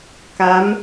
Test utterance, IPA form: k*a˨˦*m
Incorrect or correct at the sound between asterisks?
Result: correct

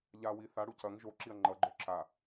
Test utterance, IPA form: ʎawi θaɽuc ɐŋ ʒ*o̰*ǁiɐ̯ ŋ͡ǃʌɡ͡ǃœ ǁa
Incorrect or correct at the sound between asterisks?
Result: incorrect: o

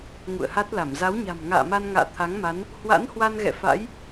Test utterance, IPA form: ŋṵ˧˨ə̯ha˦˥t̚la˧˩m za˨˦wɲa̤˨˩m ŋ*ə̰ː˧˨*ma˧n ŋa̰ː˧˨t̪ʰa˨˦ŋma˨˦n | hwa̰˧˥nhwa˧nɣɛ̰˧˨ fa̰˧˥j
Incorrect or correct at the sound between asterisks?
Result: incorrect: a̰ː˧˨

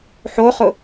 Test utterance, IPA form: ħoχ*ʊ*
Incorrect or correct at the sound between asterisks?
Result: correct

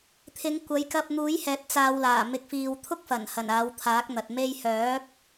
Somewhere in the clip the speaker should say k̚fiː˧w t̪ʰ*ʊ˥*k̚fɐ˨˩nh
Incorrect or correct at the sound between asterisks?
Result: correct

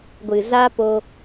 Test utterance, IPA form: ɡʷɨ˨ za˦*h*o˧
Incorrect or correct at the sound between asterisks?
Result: incorrect: p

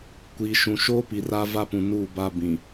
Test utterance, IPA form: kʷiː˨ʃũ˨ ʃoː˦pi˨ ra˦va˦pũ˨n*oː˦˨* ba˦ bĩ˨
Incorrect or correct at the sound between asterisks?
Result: incorrect: uː˦˨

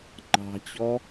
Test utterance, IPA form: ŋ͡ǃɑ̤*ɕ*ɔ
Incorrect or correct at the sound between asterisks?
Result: incorrect: t͡ɕ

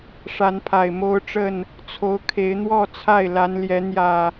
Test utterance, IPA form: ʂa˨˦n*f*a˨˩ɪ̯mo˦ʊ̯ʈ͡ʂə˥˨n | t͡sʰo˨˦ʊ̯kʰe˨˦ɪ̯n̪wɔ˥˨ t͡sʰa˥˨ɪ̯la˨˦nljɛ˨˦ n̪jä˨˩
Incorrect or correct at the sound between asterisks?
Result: incorrect: pʰ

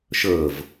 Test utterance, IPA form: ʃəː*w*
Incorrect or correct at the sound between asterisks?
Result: incorrect: v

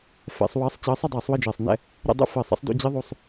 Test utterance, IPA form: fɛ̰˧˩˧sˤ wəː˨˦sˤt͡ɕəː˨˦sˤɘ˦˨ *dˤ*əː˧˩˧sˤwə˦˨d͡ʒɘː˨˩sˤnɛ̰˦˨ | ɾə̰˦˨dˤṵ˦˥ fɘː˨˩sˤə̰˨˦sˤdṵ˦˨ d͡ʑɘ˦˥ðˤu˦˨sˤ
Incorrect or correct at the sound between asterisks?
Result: correct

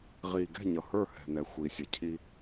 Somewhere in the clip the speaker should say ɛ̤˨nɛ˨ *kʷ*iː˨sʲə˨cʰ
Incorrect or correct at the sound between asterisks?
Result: incorrect: xʷ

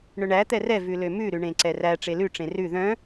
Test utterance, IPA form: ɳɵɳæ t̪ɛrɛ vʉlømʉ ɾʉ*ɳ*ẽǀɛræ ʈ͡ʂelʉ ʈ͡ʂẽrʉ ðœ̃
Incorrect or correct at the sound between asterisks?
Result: correct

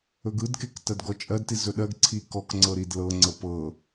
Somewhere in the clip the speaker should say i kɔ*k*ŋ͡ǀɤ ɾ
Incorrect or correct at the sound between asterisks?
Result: correct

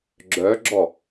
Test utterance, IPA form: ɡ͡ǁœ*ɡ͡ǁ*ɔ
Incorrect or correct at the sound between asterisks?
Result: correct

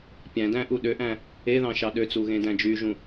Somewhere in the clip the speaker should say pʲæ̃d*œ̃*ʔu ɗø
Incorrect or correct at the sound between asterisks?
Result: incorrect: æ̃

